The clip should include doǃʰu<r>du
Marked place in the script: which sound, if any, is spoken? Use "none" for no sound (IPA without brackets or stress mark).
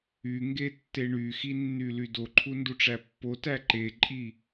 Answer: n